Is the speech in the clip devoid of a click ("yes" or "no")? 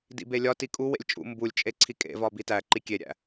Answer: no